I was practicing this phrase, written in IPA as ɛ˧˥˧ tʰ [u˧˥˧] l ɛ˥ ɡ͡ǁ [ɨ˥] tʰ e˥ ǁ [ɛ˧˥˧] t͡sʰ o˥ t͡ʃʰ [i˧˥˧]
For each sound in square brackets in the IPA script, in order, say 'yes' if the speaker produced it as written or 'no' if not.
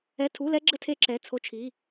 yes, no, yes, yes

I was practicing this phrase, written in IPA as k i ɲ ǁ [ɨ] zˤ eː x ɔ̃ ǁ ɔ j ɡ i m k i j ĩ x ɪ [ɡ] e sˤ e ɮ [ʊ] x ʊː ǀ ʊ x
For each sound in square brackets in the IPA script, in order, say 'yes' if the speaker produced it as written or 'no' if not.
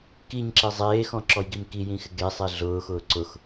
no, yes, no

